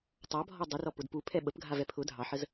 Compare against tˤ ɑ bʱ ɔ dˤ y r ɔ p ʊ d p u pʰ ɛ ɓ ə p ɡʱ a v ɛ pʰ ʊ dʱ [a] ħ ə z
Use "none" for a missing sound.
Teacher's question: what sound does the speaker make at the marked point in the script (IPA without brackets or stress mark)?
ɑ